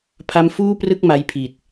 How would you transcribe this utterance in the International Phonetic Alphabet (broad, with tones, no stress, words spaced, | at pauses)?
pʰa˦˥mfuː˥˩prɯ˥˩k̚ ma˦˥jpʰi˨˩t̚